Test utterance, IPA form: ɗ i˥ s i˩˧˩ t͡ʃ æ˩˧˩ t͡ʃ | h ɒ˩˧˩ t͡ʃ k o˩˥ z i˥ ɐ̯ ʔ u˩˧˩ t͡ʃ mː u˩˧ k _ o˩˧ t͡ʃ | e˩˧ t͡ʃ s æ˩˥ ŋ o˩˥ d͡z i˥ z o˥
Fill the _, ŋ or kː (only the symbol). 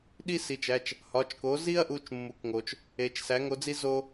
ŋ